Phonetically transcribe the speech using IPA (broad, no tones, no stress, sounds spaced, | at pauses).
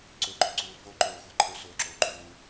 ǀ ɵ ɡ͡ǃ ɵ ǀ uː f o ǃ oː xʷ a ǃʰ ɵ s ɵː ǁ oː ǃ uː